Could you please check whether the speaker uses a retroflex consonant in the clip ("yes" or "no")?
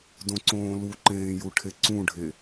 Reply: yes